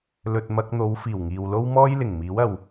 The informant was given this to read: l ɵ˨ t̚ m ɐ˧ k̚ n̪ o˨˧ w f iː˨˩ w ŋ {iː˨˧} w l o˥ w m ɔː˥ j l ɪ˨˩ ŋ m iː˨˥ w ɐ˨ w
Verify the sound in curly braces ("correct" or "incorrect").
incorrect